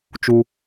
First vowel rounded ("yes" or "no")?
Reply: yes